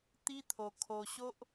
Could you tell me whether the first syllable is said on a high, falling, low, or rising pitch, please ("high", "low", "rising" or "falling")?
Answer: high